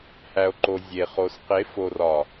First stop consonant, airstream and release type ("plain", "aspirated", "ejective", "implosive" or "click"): click